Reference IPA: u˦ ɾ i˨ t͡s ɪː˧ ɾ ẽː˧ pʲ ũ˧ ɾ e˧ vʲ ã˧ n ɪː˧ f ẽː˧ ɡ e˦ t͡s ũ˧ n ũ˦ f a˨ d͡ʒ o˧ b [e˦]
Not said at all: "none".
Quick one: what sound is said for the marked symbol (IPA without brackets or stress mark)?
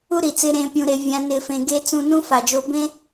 ẽ˦